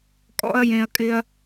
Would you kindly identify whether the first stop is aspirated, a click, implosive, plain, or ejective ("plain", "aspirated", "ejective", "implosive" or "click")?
ejective